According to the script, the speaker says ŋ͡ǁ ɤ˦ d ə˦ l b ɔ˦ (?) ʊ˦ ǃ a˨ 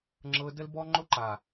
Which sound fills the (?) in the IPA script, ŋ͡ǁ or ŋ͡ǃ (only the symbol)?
ŋ͡ǃ